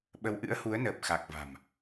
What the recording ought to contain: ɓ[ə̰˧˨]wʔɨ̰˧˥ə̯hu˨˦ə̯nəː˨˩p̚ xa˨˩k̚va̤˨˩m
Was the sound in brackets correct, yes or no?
no